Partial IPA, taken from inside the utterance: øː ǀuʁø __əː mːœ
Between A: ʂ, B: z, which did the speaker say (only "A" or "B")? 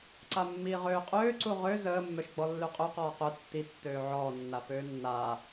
B